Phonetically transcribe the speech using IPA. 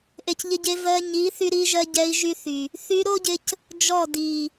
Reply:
ʔ e˨ c ʎ ɪ˧ ɟ e˧ v ɜ˧ ɲ i˨˦ θ y˧ ɾ i˧ ʒ ɜ˧ ɟ ɛ˧ i̯ ʒ y˦ θ y˨ | θ y˧ ɾ o˦ ɟ ɪ˧ c | d͡ʒ ɔ˦˨ d i˨

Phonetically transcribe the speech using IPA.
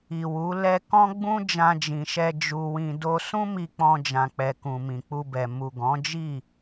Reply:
i˨ w u˨˦ l ɛ˧ k ɔ̃˦ ɡ͡b ũ˦ d͡ʒ ã˧ d͡ʒ ĩ˨ ʃ ɛ˧ d͡ʒ u˧ w ĩ˧ d o˦ s ũ˦ m i˧ k͡p ɔ̃˧ d͡ʒ ã˨ k͡p ɛ˨ k ũ˨ m ĩ˨ k͡p u˧ b ɛ˨ m u˨ ɡ ɔ̃˨˦ d͡ʒ i˦˨

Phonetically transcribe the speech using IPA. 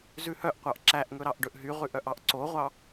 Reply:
z ʉ h œ ʔ qʷ ɑ ʔ ǁ æ ʔ ŋ ɵ ɾ ɑ ʔ ɖ ɵ ʔ ɦ y ʁ ʉ ʔ œ ʔ ɑ ʔ ǀ o ʁʷ ɑ

